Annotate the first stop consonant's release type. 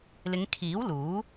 aspirated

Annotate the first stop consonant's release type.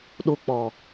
implosive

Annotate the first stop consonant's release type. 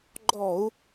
click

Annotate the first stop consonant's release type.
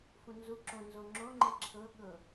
click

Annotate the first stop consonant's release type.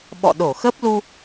implosive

